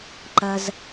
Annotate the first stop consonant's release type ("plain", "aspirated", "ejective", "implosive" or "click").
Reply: click